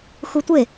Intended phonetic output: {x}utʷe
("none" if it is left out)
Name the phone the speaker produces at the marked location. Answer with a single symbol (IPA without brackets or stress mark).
x